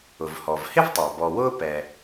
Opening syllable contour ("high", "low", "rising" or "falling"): low